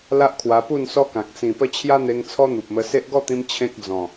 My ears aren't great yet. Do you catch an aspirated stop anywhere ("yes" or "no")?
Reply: yes